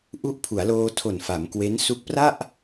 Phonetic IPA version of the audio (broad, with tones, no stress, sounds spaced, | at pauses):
ʔ u˦˥ ʔ pʰ u˩˦ a̯ l oː˧ tʰ o˨˩ n f a˩˦ m k w e˦˥ n s u˦˥ k̚ p r a˥˩ ʔ